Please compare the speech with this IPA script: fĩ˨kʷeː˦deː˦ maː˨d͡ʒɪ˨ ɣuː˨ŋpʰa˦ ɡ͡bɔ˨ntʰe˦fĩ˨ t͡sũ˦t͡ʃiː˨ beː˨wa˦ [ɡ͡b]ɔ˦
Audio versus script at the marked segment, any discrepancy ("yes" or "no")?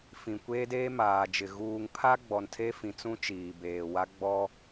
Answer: no